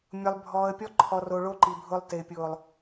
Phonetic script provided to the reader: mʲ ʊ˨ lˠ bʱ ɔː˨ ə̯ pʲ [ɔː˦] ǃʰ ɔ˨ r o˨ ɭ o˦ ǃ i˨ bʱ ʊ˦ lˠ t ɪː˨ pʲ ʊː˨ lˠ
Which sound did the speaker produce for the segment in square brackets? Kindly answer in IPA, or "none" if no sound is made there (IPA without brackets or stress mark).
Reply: ɔ˦